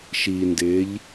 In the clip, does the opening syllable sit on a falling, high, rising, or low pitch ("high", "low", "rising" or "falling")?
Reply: low